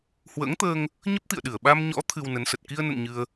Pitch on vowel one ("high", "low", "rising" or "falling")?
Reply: rising